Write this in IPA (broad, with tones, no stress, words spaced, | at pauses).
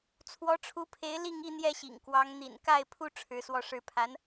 t͡sʰwɔ˧˥ʈ͡ʂʰu˧˥pʰe˧˥ɪ̯ li˥˧ŋ i˥˧n̪jɛ˥˩ɕḭ˨˩ŋkwɑ˧˥ŋ n̪ḭ˨˩nka˥˩ɪ̯pʰu˥ ʈ͡ʂʰɻ̩˧˥swɔ˥˧ʂɻ̩˥˩ pʰa˧˥n